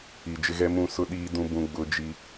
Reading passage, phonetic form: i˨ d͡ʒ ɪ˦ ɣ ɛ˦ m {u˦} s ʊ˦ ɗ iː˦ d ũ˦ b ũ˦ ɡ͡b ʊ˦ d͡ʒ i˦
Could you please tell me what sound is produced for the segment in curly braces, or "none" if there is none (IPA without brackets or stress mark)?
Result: ũ˦